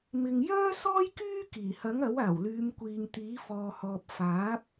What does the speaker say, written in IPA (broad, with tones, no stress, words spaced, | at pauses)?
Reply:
mɪ˨ŋjœː˥sɔː˥j kyː˥ kiː˨˩hɐ˨˥ŋɐ˨˥w aː˨˩w lyː˨˧mkʷiː˨ŋt̪iː˨˥ fɔː˨hɔː˨p̚ faː˨˥p̚